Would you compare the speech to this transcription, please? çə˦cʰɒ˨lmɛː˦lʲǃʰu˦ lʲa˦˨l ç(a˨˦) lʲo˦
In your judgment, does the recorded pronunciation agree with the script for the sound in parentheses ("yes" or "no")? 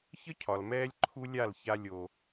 no